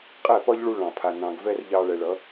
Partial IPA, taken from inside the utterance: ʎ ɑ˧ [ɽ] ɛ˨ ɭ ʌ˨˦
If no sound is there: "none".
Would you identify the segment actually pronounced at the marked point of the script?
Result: ɭ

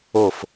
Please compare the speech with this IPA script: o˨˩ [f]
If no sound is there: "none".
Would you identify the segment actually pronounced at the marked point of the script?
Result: f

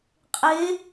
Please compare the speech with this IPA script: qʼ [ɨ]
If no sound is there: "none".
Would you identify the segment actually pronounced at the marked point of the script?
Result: e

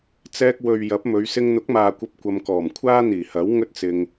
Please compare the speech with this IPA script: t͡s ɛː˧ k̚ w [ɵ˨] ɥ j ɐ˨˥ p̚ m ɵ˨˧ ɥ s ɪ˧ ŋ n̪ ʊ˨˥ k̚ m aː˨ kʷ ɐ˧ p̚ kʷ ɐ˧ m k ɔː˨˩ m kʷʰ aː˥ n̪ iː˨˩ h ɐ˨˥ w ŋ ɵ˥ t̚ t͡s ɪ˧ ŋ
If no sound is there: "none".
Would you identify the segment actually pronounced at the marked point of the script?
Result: ɵ˨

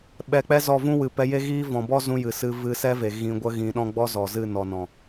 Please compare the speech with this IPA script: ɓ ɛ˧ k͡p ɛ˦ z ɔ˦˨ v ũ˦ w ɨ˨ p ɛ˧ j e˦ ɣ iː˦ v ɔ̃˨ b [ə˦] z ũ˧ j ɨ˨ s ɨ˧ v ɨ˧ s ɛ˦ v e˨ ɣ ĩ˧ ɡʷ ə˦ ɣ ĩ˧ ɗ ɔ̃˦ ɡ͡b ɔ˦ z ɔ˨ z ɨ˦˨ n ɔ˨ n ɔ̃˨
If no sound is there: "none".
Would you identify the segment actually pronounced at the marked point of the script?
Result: ɔ˦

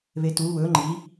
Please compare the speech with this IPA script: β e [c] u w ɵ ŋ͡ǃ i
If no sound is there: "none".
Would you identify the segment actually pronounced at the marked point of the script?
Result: t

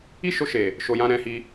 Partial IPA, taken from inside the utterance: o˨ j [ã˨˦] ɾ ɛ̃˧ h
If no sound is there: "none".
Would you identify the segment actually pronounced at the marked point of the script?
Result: ã˧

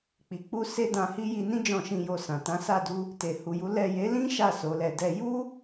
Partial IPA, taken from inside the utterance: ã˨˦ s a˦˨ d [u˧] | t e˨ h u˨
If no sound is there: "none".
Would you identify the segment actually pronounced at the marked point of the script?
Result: u˧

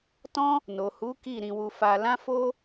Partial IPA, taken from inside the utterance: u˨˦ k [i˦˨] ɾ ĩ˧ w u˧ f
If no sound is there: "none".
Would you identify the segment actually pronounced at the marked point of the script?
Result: i˦˨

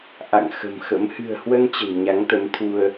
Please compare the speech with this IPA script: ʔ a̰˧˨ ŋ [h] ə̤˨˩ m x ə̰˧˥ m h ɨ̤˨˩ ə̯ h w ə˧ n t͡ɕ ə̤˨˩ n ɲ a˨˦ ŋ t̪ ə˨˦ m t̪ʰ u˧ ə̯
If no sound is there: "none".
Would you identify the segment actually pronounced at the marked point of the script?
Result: x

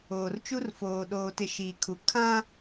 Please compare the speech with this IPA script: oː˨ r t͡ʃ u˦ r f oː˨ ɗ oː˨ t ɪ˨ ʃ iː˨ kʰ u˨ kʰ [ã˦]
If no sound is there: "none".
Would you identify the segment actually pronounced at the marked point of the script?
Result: ã˦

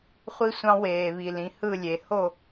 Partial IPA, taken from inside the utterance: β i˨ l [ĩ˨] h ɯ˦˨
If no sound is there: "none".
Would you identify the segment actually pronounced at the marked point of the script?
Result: ĩ˨˦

